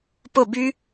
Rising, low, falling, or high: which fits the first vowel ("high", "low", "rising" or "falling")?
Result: falling